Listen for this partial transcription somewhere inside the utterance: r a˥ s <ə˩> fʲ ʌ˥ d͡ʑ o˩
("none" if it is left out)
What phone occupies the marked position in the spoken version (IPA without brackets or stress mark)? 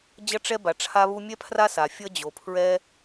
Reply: a˩